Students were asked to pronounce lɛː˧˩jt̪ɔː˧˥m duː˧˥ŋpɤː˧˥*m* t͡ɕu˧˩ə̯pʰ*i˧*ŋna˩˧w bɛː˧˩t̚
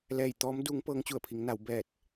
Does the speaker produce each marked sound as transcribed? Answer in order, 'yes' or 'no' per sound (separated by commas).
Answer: no, no